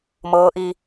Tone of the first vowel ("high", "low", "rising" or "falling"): rising